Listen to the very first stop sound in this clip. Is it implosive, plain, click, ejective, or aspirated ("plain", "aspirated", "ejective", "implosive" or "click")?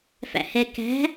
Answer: plain